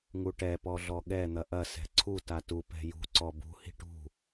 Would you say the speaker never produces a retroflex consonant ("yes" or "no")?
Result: no